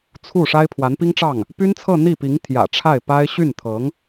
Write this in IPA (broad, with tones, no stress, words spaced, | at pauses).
t͡sʰu˥˩ ʂa˥ɪ̯pʰwa˧˥npi˥ŋʈ͡ʂɑ˥˩ŋ | py˥nt͡sʰɤ˥˧ n̪i˥˩pi˧˥ŋ t̪ʰjä̰˨˩ʈ͡ʂʰa˥˩ɪ̯ pa˥ɪ̯ ɕy˥˩nt̪ʰɤ˧˥ŋ